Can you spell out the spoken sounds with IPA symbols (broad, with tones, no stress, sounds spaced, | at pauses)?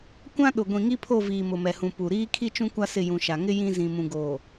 kʷ ã˦ ɗ ʊ˨ ɡʷ ĩ˨ ŋ i˦ pʰ o˦˨ v iː˨ m ʊ˨ m ɛ˨ h ũ˨ p u˨ ɾ iː˦ kʰ i˦ t͡ʃ ũ˦ kʷ a˦ s ɪ˦˨ j ũ˨ ʃ a˨ ŋ ɪ˦ j ĩ˦ z ĩ˨ m ũ˨ ɡ oː˨